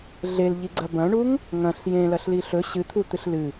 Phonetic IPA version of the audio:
ɮ e l ʎ i ɡ͡ǀ ɐ b ɐ̃ ɳ u ŋ | ŋ ɐ̃ ɬ j ẽ l ɐ ɬ l i ɬ ɵ ɕ ɨ t̪ʰ u t̪ ɨ ɬ l ɨ

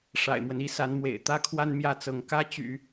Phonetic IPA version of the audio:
ʂ a̰˨˩ ɪ̯ m w ə˦ n i˧˥ s a˧˥ n m w ḛ˨˩ ɪ̯ t̪ ä˥ kʰ w a˥ n m j ä˥˩ t͡s ɤ˧˥ ŋ k ä˥ t͡ɕ y̰˨˩˦

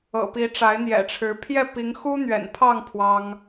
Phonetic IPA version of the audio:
ɤ̰˨˩ p i˨˦ ʈ͡ʂ a˨˦ ɪ̯ n̪ j ɛ̰˨˩ ʈ͡ʂʰ ɻ̩˨˦ pʰ j ɛ˥˨ p i˨˦ ŋ x u˦ n̪ ɥ ɛ̰˨˩ n pʰ ɑ˥˨ ŋ pʰ w ɑ˦ ŋ

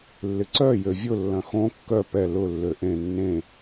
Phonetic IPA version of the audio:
lː ɪ ǀ œ j ø vʲ ʊ lː ɐ̃ x õ kː œ p ɛ l ʊ lː ø ʔ ẽ nː ẽ

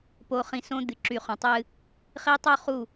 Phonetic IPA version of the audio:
p o˨ χ ĩ˨ s õ˦ d̪ ɨ˨ ǁ y˨ χ õ˨ tˤ ɨ˦ | χ i˦ tˤ o˦ χ u˦˨

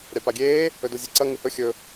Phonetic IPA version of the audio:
ɾʲ a p a ɡʲ eː | ɵ d o zʲ e ǀ ɐ ŋ ɨ h ɵ xʲ ɵ

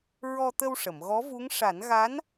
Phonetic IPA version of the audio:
ɹ ɔ˧ t̪ ə˧ w ʂ ə˨˩˨ m ɣ ɔ˧˥ v u˧˥ ŋ ʂ a˨˩˦ n ɣ a˧˥ n

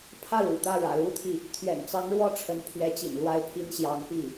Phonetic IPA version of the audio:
pʰ ä˥˩ ɻ ṵ˨˩ t̪ ä˥˩ ɻ ä̰˨˩ l u˥ t̪ʰ i˨ | t̪ʰ ɥ ɛ̰˨˩ n t͡s ɑ˧˥ ŋ ɻ w ɔ˥˩ ʈ͡ʂʰ ə˧˥ n pʰ ɥ ɛ˧˥ t͡ɕ ḭ˨˩ n l w a˥˩ ɪ̯ pʰ i˥ n ɕ j ɑ˧˥ ŋ p i˥˩

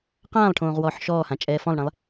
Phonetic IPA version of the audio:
q ãː lˠ ʈʰ õː ʁ w ɔː ħ ʃ ɔː h ã t͡ʃʼ ɛː f ɔ̃ lˠ ɳ ɛ̃ lˠ

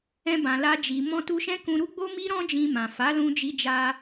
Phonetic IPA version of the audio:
ɛ̃˧ b ã˨ l a˧ d͡ʒ i˨ m ɔ̃˧ t u˧ ʃ ɛ̃˦ k ũ˧ ɾ u˦ ɡ͡b o˦ m i˦ ɾ ɔ̃˦ d͡ʒ ĩ˧ m ã˨ f a˨˦ l ũ˧ d͡ʒ i˧ d͡ʒ a˧

